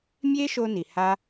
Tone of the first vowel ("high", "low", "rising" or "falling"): high